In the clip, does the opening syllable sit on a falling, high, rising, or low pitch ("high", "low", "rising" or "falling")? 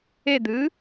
falling